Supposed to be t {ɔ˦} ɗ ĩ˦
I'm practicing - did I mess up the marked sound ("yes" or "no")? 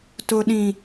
yes